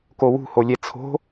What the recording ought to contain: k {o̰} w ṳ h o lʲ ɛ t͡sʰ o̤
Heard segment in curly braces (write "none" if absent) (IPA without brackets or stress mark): o